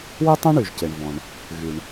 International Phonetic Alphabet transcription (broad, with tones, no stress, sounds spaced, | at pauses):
w ø˥ tˤ ã˥ ɳ y˩ ʒ c e˩ ɳ v ɔ̃˩ ɳ | ɣ y˩ ɳ